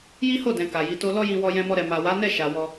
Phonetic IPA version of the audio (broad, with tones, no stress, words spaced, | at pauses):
ji˦ho˦˨dɛ̃˨ ka˨ji˨˦to˦ lɔ˦jĩ˧wɔ˧ jɛ̃˧mɔ˧ɾɛ˨ ma˨wa˨˦nɛ˦˨ ʃa˨ wɔ˧